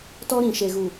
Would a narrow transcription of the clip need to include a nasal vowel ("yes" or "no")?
yes